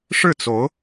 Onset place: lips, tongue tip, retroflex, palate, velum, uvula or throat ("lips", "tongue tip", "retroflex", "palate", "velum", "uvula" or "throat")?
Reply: retroflex